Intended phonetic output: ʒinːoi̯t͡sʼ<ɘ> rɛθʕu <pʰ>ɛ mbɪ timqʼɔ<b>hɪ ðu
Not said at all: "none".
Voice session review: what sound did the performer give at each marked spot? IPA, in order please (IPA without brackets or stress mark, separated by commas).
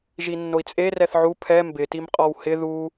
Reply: e, pʰ, w